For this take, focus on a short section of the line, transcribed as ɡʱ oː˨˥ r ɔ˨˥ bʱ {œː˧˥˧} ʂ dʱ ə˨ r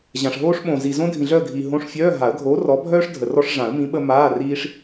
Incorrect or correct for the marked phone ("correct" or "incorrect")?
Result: incorrect